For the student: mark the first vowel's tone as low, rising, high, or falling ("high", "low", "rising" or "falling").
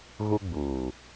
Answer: high